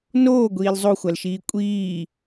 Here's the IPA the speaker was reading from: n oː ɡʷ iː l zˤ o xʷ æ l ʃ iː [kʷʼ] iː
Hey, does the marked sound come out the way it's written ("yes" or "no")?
yes